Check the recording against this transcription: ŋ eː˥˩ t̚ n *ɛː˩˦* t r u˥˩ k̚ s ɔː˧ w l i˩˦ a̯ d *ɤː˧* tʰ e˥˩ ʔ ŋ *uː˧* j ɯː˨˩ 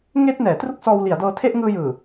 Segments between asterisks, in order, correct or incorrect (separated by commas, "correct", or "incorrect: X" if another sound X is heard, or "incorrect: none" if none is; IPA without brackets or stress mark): correct, correct, incorrect: ɯː˧